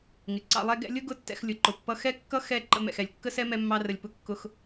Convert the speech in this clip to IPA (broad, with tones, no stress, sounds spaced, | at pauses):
ŋ ɪ˨ ǀ ɑ̰˧ lˠ ɛ˦ ɡ ɛ̰˧ lʲ ʊ˦ ɡ ʊ˦˨ tː ɛ̰˧ x lʲ ʊ˨ ǃ ʊ˨ pː ʌ˧ x ɛ˦ kː ʌ˦ x ɛ˦˨ ǃ ə̰˧ m ɛ̰˨ x ɛ˨ lʲ kː ə˦ s ɛ˦ m ɛ˦ mː ɑ˦ r ə˧ lʲ p ʊ˦ kː ʊ˦ x